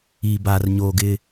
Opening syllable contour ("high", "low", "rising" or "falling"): low